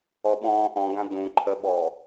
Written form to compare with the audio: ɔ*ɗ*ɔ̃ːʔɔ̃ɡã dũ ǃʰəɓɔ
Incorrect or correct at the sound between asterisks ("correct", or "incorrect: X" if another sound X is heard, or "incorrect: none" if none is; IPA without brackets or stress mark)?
incorrect: ɓ